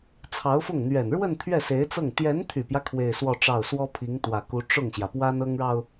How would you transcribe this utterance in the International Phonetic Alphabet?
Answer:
t͡sʰɑ˧˥ʊ̯fʊ˥˩ŋ n̪ɥɛ˨˩nɻwə˥˧n t̪ʰɥɛ˥˩se˧˥ɪ̯t͡sɤ˥˩ŋ t̪jɛ˧˥nt̪ʰy˨˩pjä˦ kʰwe˥˧ɪ̯swɔ˥˧ʈ͡ʂɑ˥˩ʊ̯ swɔ˥pʰi˧˥ŋt̪wä˨˩ku˧˥ ʈ͡ʂʊ˥˩ŋɕjä˩pwa˥n ɤ˥ŋɻɑ˨ʊ̯

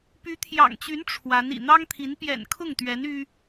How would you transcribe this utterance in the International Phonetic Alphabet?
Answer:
py˧˥t̪ʰjɑ̰˨˩ŋt͡ɕy˧˥n ʈ͡ʂʰwa˧˥n ḭ˨˩n̪ɑ˥ŋt̪ʰi˧˥n pjɛ̰˨˩n kʰʊ˥˩ŋt̪ɥɛ˧˥n y˥

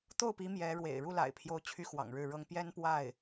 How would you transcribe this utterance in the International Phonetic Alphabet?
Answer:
t̪o˥˩ʊ̯pi˧˥ mjɛ˧˥ɻwḛ˨˩ɪ̯ ɻu˥˩la̰˨˩ɪ̯pʰjo˧˥ʊ̯ t͡ɕʰy˥xwɑ̰˨˩ŋɻɻ̩˥˩ɻɤ˥ŋ pjɛ˥npwa˥˩ɪ̯

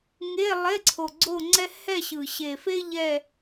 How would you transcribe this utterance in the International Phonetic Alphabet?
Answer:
ŋe˧˥˧ lˠe˧˥˧ǀʰo˨˩ɡ͡ǀo˥˧ŋ͡ǀɛ˥ hɛ˥˧ɕɯ˨˩ ɕe˨˩fe˥ ʎɛ˥˧

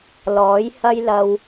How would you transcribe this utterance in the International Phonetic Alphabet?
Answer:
lɔː˨˥j hɐ˧jlɐ˨w

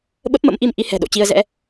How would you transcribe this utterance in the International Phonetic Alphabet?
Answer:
ɓə˦˥p̚mə̰˧˥mʔi˧m ʔi˨˦hɛ̤˨˩ɗo̰˧˨t͡ɕi˧ə̯ zɛ̰˧˥

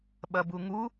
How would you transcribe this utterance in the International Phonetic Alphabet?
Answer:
ɓɐbuŋu

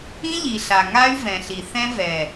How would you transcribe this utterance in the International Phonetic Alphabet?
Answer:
ĩ˦ʎi˨ɬa˨ ŋa˦y̯vɛ̃˨ɬi˨ θɛ̃˦vɛ˨

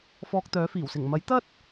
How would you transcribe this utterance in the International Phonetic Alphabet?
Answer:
fɔː˧k̚t̪œː˨˥fiː˨˩wsɪ˨˩ŋ mɐ˨˥jt̪ɐ˥t̚

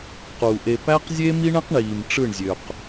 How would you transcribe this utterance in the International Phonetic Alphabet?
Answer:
qu˨ʔe˧ pæ˦qzʲe˦mi˦ɳẽ˦q ɳiː˨mʈ͡ʂɯ˦˨ɳzʲø˨q

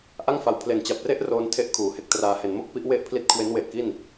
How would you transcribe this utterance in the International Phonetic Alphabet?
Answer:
ʔa˥˩ŋfa˧w pʰle˨˩nt͡ɕa˨˩p̚re˥˩ʔ roː˧ntʰe˦˥ʔ kʰuː˨˩he˦˥k̚traː˧ he˩˦nmo˥˩k̚ pi˦˥ʔ we˥˩ʔpʰli˦˥t̚ kʰwe˦˥nwe˨˩ʔki˥˩n

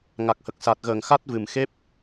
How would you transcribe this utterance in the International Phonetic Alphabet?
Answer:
ŋa˨˩k̚hə˨˩k̚sa˨˩t̚ɣəː˨˩ŋ xa˦˥t̚vɨ˨˩mxe˦˥p̚

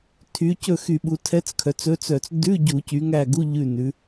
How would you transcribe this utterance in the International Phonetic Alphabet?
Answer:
tʰy˩˧cɵ˦˨ xy˧˩˧ɓu˩˧tʰɛ˧˥t͡skʰœ˩˧t͡s ɵ˧˥t͡sœ˧˩˧t͡s dʉ˧˥˧ ɟu˧˩˧cy˩˧ŋæ˦˨ɡu˧˥˧ ʎʉ˦˨nʉ˩˧

